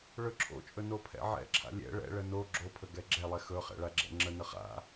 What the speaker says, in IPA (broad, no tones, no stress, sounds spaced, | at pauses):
ɭ ɵ ǁʰ o̰ t͡ʃʼ ɵ n o pʰ ɛ̰ ʕ ɛ̰ ǁʰ a̰ lʲ ɛ̰ ɭ ɛ̰ ɭ ə n o ɡ͡ǁ o pʰ ə ɡ ɛ ɡ͡ǁ ɛ lˠ ɛ x ɵ χ ɛ̰ ɭ a ɡ͡ǁ ɛ̰ ŋ͡ǁ ə n ə χ a̰